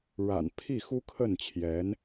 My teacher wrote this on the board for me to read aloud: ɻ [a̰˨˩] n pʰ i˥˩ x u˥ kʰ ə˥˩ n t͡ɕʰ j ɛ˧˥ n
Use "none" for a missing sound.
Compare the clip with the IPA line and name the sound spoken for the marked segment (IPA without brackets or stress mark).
a̰˨˩